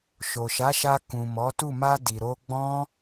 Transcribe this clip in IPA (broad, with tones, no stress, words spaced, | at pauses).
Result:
ʃo˨ʃa˨˦ʃa˧ kũ˨ mɔ˨˦tu˦˨ ma˧ di˨ ɾo˧ ɡ͡bɔ̃˦